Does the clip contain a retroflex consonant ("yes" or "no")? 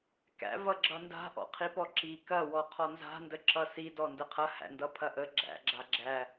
no